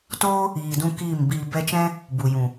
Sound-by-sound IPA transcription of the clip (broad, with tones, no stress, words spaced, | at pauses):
toː˦ | iː˨dũ˧ kiː˦˨mbiː˧ bɛ˧t͡ʃɛ̃˦ | bu˨jũ˨